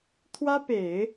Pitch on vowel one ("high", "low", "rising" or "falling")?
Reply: high